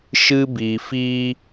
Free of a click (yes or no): yes